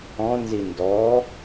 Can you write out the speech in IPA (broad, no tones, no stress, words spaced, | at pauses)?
ɔ̃nzi ndɔ